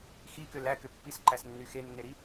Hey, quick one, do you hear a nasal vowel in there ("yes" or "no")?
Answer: no